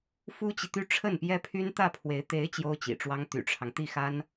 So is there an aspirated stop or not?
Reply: yes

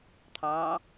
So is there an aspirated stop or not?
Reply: yes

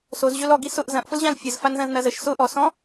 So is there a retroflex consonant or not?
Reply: no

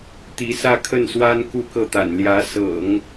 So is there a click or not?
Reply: no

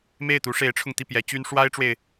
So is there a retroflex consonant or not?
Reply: yes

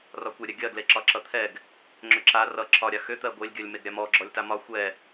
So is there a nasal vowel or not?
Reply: no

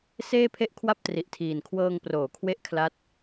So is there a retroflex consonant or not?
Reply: no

